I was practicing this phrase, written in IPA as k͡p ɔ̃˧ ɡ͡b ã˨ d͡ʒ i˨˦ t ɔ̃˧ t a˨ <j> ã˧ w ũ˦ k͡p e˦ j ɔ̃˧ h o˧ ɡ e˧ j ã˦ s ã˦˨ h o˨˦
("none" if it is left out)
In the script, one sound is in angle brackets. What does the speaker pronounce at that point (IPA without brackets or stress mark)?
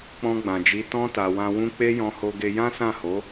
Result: w